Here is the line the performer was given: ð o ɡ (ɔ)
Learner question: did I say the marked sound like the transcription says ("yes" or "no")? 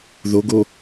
no